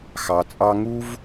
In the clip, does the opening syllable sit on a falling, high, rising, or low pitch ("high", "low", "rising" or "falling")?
low